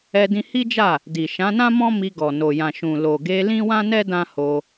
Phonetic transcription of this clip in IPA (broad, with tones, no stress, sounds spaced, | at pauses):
ɛ˧ d ĩ˧ h i˦ d͡ʒ a˦˨ | d i˨ ʃ ã˨˦ n ã˦ m ɔ̃˦ m i˧ ɡ ɔ˨ n o˨ j ã˨ ʃ ũ˨ l o˨ ɡ e˧ l ĩ˦ w ã˦ n ɛ˦ d ã˦ h o˧